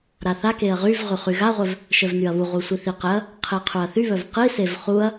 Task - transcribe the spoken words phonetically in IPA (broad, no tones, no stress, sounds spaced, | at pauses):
ɾ a θ a k e ɐ̯ ʁ y v ʁ y χ y ɣ a ʁʷ œ v | ʃ œ v n y ɐ̯ β u ʁ u sʷ i θ i q e ɐ̯ | qʰ i qʰ u ɐ̯ θ y β œ v q i s e v χ u ɐ̯